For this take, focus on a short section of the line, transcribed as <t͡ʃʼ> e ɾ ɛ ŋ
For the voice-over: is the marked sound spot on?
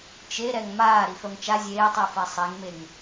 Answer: no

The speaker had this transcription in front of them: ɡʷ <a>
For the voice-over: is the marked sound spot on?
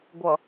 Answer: no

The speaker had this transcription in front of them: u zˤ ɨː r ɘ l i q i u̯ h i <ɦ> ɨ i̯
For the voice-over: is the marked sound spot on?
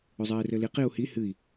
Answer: no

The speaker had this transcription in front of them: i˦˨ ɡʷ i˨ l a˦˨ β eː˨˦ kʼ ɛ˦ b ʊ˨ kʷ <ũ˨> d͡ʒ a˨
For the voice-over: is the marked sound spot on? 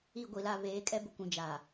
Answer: yes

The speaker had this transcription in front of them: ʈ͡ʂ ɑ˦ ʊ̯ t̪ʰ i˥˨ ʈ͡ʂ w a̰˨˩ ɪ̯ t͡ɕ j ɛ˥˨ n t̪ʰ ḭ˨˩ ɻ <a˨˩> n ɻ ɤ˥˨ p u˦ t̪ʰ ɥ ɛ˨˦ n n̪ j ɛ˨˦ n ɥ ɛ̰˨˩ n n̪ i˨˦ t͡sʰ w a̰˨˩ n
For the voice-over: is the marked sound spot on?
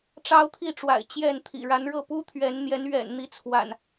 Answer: no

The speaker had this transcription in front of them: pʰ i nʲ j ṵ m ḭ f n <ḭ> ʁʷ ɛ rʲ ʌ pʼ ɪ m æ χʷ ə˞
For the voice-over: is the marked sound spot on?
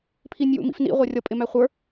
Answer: yes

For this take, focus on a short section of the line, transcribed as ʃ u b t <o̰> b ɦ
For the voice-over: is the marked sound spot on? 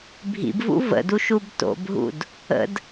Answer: yes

